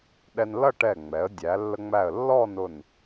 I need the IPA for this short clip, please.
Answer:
ɗ ɛ˧ n l ʌ˥˧ ʈ ɛ˧˩ ŋ͡m ɛ˩˧ ə̯ dʲ æ˩˧ lː ə˧ ŋ͡m æ˧˩ ə̯ lː ɔ˥˧ n ʊ˧˩ n

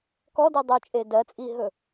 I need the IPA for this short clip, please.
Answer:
k ɔ d i dˤ u t͡ʃʼ e d ɜ t͡sʼ i ɦ ɵ

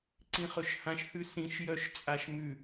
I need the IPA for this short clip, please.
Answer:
ǀ ĩ χ ɵ ʃ h ã ʃ h ʉ s ĩ ʃ j œ ʃ t͡sʼ a ʃ m ʉ

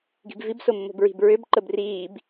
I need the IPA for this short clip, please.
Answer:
ɡ i̤ b v i b s o mː o̤ b ɹ i̤ b ɹ ʏ b ǃ ə b r iː b

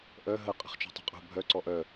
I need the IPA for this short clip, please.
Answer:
ʔ œ ɦ ə qʼ ə̤ χ t͡ʃ ṳ tˤ ṳ qʼ ṳ bʱ œ ǀ ɔ ʔ œ

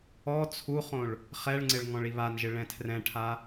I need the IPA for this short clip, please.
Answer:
ɔ t͡sʰ u χ õ ɭ | χ ɛ ɭ ŋ͡ǀ ɪ ɭ ŋ ɔ̃ ɭ i β a n ʒ ɪ ɭ ɛ̃ tʰ r ɛ̃ ʈʰ a

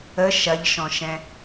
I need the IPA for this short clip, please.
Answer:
ə ʃ ɐ ʎ ʃ ɔ̃ ʃ ɛ̃

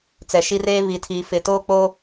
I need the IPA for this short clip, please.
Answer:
t͡s ɛ˨ ʃ i˦ r eː˦ β i˨ tʰ iː˨ f ɪ˨ t oː˦ k͡p oː˦

